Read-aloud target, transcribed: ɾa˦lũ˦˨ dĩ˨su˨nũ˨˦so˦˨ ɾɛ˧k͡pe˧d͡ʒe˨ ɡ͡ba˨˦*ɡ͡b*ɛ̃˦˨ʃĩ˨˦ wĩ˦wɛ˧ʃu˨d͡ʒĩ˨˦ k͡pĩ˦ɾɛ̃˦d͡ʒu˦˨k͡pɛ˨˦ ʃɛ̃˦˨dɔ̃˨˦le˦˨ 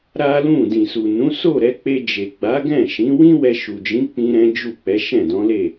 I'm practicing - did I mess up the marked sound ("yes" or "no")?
yes